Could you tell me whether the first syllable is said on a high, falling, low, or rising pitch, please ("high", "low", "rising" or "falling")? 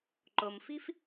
low